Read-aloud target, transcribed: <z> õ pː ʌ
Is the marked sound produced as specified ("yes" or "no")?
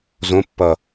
yes